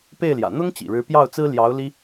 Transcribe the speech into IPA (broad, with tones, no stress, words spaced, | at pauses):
pe˥˩ɪ̯ljä̰˨˩ n̪ʊ˥ŋ t͡ɕḭ˨˩ɻɻ̩˧˥pjɑ˥˩ʊ̯t͡sɹ̩˥ ljɑ˧˥ʊ̯ li˥